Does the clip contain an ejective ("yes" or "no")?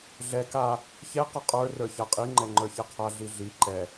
yes